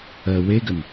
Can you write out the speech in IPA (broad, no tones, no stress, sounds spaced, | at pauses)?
ɜ w e ɡ ə n